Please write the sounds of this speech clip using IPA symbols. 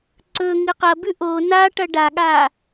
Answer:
ǀɵ ŋɨqɐbʉ ʔo naʈɐ ɖaɠa

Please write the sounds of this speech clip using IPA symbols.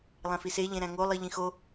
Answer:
lˠæ̃fise ʎẽɾæ̃ŋo lˠiʎĩxo

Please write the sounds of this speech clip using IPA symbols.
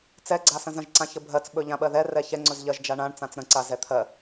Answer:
t͡sɛɡ͡ǀasə̃z ə̃ʒǀã çəbʱɜt͡s ɓɵʎãɓɜðɛ rɛçɛŋ͡ǀɵz ʎɜʒd͡ʒaɳãɳt͡sãt͡s ɾə̃ǀa zɛt̪ʰɜ

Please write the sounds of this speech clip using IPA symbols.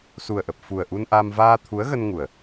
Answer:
su˨˩ə̯ ʔə˨˩p̚ fu˨˩ə̯ ʔu˧nʔa˧m vaː˧t̪ʰu˨˦ə̯ɣə˧nŋu˨˩ə̯

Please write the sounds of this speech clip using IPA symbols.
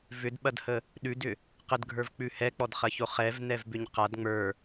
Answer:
vʏdɓɐdhə | ɗʉdʏ | qədɡʱə˞vk͡pʉ hɛk͡pɔdχɐço χɛvnɛvbʏɲ qad ŋ͡mə˞

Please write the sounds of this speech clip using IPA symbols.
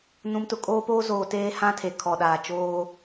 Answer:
nũ˨mtʊ˨kʼoː˦poː˦ zoː˨teː˦hã˦ tʰe˨kʰɔ˨ɗaː˨ t͡ʃoː˦

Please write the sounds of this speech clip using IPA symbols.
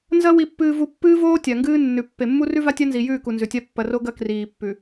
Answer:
nzɐ˦ wi˨pːɨː˨vu˨ pːɨː˦voː˦ tʲa˨ŋɡɨː˦nːʉ˨ pːe˨mːu˦rʉ˦ va˦tʲa˦nzi˨jʉː˦˨ ku˨nzʉ˨tʲa˦ pːɐ˨ ro˦ ɡɐ˦kriː˨pːʉ˨

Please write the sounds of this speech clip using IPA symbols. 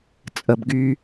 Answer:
t͡sʼə˨bɡy˦

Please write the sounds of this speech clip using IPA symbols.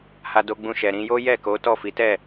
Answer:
ha˦do˦ɡ͡bũ˦ʃɛ˧ ɾĩ˧jo˦ jɛ˦˨ko˨˦ tɔ˦˨fi˨˦tɛ˦˨

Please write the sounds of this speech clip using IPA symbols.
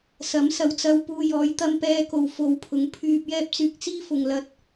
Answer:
sɐ˨˥msɐ˨˧wt͡sɐ˧w puː˧jɔː˨˧jt̪ɐ˥m pɛː˧ko˨wfo˨w pʰʊ˨˥ŋpʰyː˧p̚jɛː˥p̚t͡syː˧k̚ t͡siː˥fʊ˨ŋlɐ˧t̚

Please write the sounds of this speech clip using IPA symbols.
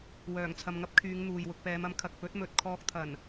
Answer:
wœː˨˩ŋt͡sʰɐ˨mŋɐ˥p̚kʰyː˨˧ŋ n̪uː˨jwʊ˧k̚ pɛː˨˧mɐ˨˥mkʰɐ˨k̚ pɵ˨˥t̚ mɵ˨t̚kʰɔː˧k̚t̪ʰɐ˨˩n

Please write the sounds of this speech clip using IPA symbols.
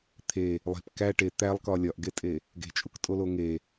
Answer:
t̪ʰe | lˠe̤p kæ ʈe t̪ælˠkɒ lʲɒʔɡetʼe | ɡe̤t͡ʃʼuktʼolo ŋe

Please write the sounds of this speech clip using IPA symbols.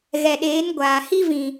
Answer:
ɣɛ˨ɗeː˨˦n ɡʷaː˨ hi˦vĩ˨

